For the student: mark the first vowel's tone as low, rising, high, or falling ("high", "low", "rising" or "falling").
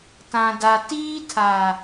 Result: low